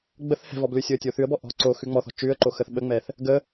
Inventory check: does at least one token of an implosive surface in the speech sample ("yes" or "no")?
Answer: yes